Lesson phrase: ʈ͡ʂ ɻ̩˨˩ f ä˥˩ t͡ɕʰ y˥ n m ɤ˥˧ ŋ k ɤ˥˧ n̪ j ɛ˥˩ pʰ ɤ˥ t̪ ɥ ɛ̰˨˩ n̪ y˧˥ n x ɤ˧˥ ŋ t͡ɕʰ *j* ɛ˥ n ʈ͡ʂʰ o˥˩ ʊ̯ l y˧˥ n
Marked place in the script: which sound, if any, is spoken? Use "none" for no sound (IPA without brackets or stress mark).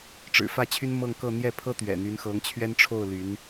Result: ɥ